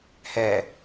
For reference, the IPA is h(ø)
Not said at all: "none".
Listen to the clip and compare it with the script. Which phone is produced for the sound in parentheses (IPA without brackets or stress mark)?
ɛ